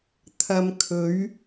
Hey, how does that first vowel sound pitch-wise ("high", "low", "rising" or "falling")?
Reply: low